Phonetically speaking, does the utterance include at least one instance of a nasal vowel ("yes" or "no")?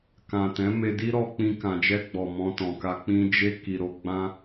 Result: yes